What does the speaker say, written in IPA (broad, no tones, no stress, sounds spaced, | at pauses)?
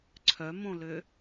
ǀʰ œ m õ l ø